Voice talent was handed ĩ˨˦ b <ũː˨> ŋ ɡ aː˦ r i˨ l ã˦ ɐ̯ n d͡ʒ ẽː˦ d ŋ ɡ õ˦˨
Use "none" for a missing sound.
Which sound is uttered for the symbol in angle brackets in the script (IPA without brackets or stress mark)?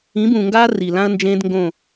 ũː˨